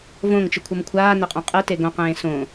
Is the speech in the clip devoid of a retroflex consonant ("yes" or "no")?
yes